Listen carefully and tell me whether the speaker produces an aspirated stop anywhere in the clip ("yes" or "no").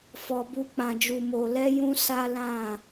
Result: no